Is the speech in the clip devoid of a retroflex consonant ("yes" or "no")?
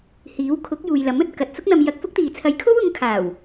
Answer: yes